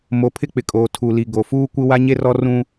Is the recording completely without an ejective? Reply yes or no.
no